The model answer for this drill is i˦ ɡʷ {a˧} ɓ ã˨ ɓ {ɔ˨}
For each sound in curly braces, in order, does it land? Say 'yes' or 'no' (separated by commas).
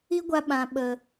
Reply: yes, no